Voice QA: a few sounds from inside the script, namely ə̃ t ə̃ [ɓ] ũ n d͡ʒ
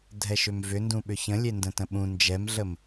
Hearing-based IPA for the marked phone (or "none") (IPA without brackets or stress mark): ɓ